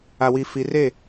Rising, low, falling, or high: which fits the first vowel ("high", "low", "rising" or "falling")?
low